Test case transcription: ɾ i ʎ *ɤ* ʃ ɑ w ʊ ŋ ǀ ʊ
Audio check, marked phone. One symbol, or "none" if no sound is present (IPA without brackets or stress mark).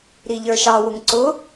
ə˞